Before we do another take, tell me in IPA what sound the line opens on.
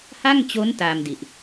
h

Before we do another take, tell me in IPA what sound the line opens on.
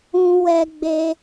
ũ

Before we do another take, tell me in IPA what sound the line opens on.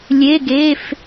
lʲ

